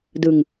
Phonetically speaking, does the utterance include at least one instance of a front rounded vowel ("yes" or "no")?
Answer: no